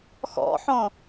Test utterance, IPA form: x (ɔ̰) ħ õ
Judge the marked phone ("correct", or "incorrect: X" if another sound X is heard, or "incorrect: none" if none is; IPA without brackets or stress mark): correct